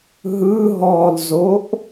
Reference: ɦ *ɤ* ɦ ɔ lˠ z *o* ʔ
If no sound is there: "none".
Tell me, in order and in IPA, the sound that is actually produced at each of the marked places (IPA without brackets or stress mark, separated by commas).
ɯ, o